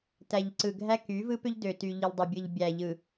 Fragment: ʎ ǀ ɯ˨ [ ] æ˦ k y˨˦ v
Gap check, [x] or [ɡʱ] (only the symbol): ɡʱ